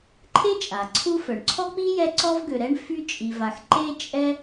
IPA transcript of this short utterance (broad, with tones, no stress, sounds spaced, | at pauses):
ǃʰ e˥ t͡ʃʼ a˩ ǀʰ u˦ f œ˩ ɳ ǀʰ ɔ˥ k͡p i˥ j ɛ˦ ǀ ɔ˥ v ɡ ø˨ ɾ ɛ˥ ɳ f y˦ t͡ʃʼ i˨ v a˨ x ǃ e˦ t͡ʃʼ ɛ˦